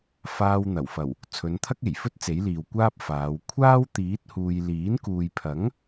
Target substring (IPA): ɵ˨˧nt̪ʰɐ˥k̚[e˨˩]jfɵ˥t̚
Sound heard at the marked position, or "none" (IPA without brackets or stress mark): e˨˩